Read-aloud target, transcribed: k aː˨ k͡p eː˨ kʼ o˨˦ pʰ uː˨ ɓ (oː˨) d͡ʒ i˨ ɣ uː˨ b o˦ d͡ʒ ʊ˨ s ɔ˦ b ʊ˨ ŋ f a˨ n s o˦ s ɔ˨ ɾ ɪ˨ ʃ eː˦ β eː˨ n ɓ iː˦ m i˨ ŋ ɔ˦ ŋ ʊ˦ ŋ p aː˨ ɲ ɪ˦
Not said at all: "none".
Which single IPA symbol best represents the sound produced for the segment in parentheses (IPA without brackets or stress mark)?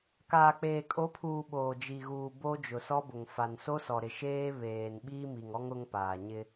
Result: oː˨